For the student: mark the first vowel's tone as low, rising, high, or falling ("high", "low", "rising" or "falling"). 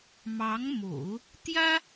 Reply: rising